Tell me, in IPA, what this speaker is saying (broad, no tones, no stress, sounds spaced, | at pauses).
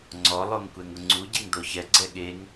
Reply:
ŋ͡ǀ ɔ lˠ o ŋ kʷ ɛ ŋ ʊ ŋ͡ǀ u ɟ e ŋ d̪ o ç ɛ ɡ͡ǀ ɛ ɠ e ŋ